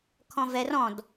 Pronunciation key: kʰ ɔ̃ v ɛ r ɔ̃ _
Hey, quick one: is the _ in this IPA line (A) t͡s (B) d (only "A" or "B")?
B